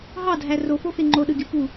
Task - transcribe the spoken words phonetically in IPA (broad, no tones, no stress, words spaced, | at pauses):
ɦɑdʱæ rofofe ŋ͡ǃoɗɯɡʲu pu